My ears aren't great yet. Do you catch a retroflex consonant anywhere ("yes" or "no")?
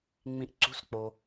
no